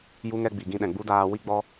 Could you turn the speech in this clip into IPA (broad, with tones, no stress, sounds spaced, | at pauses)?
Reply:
j u˦ ŋ ɛ˦ ɡ͡b i˨ ɡ ĩ˧ ɗ ɛ̃˨ ɡ͡b u˦ d aː˧ w i˦ ɡ͡b ɔ˦